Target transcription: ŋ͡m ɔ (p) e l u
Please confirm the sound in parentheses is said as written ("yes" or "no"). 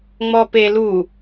yes